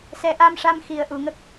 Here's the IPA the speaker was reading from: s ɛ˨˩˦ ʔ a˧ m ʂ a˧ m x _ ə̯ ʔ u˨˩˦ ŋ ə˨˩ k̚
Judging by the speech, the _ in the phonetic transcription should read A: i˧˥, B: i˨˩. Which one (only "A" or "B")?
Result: B